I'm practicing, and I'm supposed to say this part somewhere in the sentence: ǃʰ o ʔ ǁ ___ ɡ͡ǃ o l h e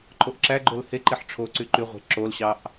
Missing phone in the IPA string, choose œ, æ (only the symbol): æ